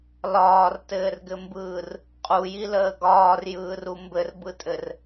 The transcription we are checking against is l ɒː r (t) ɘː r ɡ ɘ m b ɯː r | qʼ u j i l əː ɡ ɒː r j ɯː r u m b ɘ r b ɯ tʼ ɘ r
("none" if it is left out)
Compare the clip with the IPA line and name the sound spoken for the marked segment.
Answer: t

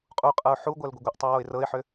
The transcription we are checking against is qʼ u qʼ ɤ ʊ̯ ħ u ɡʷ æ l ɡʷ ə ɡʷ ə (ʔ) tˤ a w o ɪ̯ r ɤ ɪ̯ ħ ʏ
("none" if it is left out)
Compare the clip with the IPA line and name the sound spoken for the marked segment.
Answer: ʔ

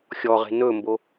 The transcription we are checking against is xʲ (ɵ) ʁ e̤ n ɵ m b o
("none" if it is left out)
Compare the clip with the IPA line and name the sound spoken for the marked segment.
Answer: ɔ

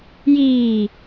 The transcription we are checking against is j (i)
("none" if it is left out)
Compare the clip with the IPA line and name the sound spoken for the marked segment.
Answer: iː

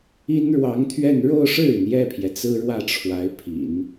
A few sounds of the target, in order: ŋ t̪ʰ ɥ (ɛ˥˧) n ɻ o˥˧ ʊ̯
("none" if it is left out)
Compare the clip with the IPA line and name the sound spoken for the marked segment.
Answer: ɛ˥˧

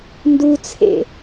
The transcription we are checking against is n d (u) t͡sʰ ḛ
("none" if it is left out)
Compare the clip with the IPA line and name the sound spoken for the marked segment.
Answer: u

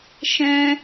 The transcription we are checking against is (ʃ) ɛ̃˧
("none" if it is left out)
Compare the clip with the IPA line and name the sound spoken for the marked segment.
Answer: ʃ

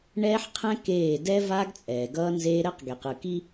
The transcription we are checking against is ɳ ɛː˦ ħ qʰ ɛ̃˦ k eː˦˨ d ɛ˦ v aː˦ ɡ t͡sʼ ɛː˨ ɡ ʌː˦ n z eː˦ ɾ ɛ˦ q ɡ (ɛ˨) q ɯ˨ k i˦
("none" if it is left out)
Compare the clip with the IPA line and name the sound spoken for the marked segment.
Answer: e˨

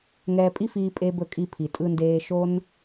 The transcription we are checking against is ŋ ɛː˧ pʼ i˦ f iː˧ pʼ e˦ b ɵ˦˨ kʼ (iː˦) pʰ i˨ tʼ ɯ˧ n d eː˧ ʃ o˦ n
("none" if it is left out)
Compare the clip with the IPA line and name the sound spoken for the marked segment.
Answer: i˦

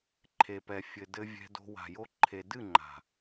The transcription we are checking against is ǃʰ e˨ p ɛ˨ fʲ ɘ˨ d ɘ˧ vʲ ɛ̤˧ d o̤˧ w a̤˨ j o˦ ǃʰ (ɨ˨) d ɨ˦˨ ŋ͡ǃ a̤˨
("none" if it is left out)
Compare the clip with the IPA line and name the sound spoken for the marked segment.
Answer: e˨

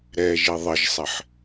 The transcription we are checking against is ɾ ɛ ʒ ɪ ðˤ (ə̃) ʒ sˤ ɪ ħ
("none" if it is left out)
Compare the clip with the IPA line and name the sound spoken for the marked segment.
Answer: ə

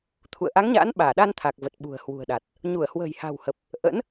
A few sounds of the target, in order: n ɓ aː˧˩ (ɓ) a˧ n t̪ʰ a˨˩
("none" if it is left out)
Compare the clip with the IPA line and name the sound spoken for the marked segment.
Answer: ɗ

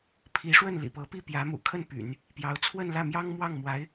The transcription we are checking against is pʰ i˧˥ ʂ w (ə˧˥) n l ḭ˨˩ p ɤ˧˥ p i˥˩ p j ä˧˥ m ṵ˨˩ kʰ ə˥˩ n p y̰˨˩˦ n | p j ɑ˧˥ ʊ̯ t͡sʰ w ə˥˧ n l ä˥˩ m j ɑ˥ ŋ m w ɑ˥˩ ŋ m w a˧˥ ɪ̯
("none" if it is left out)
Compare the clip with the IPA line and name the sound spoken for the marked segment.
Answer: ə˥˩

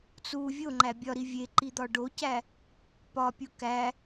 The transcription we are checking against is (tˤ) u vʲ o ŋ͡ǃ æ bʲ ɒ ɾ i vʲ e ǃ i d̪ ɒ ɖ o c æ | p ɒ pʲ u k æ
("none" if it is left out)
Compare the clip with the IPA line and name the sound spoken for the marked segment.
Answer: t͡s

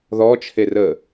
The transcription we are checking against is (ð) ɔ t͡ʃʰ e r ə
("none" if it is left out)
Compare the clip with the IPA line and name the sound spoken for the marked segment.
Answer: ð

